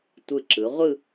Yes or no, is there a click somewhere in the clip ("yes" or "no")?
yes